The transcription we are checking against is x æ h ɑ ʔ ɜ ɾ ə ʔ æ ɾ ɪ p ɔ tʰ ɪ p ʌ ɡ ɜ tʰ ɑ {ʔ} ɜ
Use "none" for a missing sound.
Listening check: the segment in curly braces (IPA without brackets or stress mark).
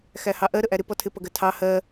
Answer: h